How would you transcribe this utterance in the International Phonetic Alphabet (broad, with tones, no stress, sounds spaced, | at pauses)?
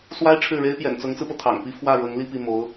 s w a˥ ɪ̯ ʈ͡ʂʰ ɻ̩˥˩ ɻ e˥ ɪ̯ p j ɛ̰˨˩ n t͡s ʊ˧˥ ŋ t͡s ɹ̩˧ p ɤ˩ t̪ʰ ɑ̰˨˩ ŋ p i˥ f w ä˥˩ ɻ ɤ˧˥ ŋ l i˥˧ p i˥˩ m o˧˥ ʊ̯